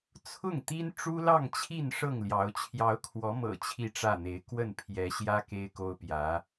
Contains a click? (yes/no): no